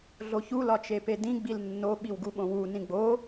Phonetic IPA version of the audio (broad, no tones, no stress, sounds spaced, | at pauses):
ɮ o ç u l ɒ t͡ʃ e p e d ĩ ɡ͡b i l nː o ɓ i w ɡ u ɓ õ w u n ĩ ɡ͡b o